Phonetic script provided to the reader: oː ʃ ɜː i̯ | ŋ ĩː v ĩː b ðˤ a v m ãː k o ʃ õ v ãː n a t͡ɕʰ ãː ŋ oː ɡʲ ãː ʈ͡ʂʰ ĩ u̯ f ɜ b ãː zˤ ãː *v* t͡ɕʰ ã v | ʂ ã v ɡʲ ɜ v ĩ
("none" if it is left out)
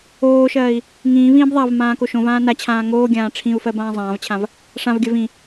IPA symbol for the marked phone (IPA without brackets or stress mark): v